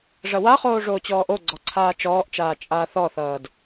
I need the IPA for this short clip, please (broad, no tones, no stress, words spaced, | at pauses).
ʐɐwaχoː ʐoːt͡ɕɔːʔoɡ͡ǀɔ ǀʰaːt͡ʃɔːʔt͡ʃaː t͡ʃʼaːθɔθʌːd